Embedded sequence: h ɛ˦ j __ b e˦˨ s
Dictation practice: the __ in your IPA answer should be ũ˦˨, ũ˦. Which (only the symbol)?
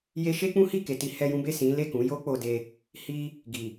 ũ˦